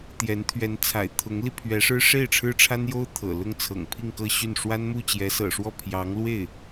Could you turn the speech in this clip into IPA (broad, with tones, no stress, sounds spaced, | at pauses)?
t̪ j ɛ˧˥ n t̪ʰ ɥ ɛ˧˥ n t͡sʰ a̰˨˩ ɪ̯ t̪ʰ ʊ˧˥ ŋ l i˧ pʰ ɥ ɛ˧˥ ʂ ɻ̩˥ ʂ e˥˩ ɪ̯ ʈ͡ʂʰ ɻ̩˥ ʈ͡ʂʰ a˥ n j o˥ ʊ̯ t̪ʰ ɤ̰˨˩ l ʊ˥˩ ŋ t͡sʰ ɤ̰˨˩ ŋ pʰ i˥˧ ŋ k ɤ˥˧ ɕ y˥˩ n ʂ w a˥ n m u˥˩ t͡ɕ j ɛ˧˥ s ɤ̰˨˩ ʂ w ɔ˥˩ pʰ j ɑ˧˥ ŋ l w e˥˩ ɪ̯